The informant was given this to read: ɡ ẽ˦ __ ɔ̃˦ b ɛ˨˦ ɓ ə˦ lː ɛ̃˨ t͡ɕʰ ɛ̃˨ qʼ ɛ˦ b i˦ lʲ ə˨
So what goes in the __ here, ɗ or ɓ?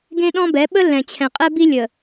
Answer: ɗ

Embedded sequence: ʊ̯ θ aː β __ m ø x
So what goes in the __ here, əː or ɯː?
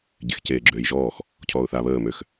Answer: əː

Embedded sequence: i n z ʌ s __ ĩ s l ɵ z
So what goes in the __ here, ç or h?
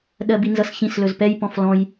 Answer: ç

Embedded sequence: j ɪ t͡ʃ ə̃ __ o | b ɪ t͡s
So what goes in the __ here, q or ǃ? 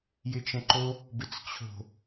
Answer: ǃ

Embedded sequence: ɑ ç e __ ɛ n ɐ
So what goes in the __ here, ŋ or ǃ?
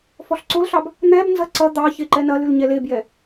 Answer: ǃ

